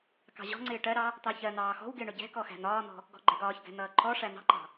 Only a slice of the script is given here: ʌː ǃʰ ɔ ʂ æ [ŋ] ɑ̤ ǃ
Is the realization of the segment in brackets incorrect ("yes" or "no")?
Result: yes